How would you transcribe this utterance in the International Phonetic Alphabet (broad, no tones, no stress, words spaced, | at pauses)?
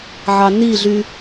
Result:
ʕɑniɮy